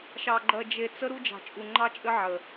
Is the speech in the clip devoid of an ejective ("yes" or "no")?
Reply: no